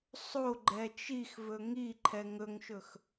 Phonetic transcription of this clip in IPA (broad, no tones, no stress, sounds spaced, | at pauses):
sˤ o ɡ͡ǃ ɛ t͡ʃ i x v ɵ ŋ i ǃʰ ɛ ŋ ɵ ŋ ʃ ɵ x